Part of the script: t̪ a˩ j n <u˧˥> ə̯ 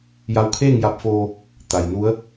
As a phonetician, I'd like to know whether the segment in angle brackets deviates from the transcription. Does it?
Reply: no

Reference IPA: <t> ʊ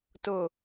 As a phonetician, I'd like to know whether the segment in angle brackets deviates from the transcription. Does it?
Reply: no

